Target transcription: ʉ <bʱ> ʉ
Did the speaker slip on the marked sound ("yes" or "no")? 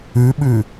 yes